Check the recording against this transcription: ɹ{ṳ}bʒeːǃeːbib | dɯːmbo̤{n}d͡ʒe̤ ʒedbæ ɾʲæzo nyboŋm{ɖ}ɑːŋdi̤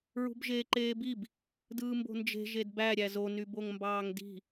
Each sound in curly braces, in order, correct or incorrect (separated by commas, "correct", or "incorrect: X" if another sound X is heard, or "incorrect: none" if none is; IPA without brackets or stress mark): correct, correct, incorrect: b